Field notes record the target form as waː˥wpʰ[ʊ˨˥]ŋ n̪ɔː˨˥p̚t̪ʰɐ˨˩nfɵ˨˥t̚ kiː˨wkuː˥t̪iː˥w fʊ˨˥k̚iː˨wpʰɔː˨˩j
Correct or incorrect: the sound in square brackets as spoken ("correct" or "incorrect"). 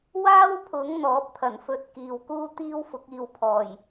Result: correct